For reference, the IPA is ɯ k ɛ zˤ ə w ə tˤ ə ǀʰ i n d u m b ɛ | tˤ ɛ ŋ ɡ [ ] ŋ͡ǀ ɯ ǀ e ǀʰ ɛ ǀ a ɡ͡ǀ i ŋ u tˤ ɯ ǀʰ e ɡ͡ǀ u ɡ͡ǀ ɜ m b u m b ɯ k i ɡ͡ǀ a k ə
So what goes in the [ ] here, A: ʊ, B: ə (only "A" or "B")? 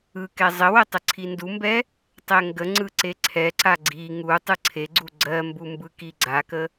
B